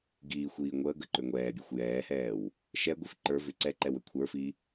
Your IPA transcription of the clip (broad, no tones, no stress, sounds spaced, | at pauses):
ɡ iː xʷ iː ŋʷ əː ɡ ə ǃ ʏ ŋʷ ɛː bʲ o xʷ j ɛː h ɛː w | ʃ ɛ ɡʷ i f ǃ ə˞ v ʏ ǀ ɛ ǃ ɛ w ʏ kʷʰ ə˞ f i